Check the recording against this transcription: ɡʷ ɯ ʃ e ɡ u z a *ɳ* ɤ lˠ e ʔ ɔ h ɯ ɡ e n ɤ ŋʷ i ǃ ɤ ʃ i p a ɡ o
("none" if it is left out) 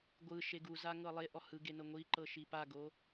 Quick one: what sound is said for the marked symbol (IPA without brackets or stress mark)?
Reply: ŋ